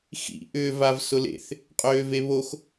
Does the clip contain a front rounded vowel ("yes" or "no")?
yes